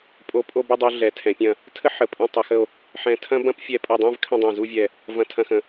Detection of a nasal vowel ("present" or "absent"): present